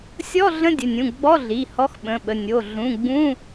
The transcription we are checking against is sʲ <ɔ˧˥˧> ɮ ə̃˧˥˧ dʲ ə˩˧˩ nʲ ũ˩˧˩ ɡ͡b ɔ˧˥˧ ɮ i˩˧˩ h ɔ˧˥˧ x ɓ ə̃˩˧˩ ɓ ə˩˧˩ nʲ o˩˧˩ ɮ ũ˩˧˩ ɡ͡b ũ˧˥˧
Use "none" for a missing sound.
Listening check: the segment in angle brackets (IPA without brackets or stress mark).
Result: ɔ˧˥˧